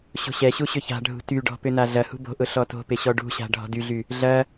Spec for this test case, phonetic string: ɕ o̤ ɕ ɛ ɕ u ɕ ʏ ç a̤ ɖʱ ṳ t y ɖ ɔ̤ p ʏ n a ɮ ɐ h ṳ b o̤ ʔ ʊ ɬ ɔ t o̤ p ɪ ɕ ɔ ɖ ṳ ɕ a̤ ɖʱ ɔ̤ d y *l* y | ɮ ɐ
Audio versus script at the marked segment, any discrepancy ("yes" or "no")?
yes